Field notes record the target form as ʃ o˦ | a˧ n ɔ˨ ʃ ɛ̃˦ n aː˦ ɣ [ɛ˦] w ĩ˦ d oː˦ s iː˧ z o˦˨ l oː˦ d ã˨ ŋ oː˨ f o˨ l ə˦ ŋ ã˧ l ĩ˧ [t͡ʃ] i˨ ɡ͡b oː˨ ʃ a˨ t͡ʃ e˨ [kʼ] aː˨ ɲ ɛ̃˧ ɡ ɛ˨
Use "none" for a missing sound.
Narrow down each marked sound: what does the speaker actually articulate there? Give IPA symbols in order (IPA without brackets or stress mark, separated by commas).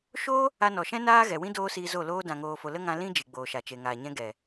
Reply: ɛ˨, d͡ʒ, ŋ